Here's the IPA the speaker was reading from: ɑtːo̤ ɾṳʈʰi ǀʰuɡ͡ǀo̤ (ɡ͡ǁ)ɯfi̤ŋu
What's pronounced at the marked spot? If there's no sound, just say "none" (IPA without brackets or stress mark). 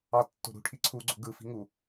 ɡ